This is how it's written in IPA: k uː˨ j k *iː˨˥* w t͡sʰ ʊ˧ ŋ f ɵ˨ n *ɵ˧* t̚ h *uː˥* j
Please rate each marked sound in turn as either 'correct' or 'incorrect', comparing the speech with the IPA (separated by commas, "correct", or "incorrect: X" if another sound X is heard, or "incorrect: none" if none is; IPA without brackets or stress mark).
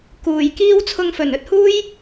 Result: incorrect: iː˥, correct, correct